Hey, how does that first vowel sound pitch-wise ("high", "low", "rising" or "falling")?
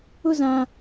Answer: falling